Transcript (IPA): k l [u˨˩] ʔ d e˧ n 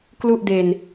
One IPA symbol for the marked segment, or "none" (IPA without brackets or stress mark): u˥˩